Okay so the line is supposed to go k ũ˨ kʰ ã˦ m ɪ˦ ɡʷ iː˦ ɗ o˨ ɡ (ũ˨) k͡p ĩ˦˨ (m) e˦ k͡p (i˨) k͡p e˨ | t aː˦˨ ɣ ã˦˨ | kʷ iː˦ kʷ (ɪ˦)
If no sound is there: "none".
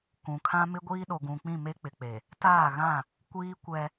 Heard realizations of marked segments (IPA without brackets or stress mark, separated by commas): ũ˨, m, ɪ˨, ɛ˦